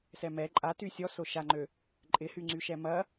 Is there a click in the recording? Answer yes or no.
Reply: yes